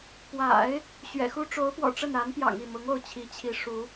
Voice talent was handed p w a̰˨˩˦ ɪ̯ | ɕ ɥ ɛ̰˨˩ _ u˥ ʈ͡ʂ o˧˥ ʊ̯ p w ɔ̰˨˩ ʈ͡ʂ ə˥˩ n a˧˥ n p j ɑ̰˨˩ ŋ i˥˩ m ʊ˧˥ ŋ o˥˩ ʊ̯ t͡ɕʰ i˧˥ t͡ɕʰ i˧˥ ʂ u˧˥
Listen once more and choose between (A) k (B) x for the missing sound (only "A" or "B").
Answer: B